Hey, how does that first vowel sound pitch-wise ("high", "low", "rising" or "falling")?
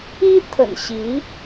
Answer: high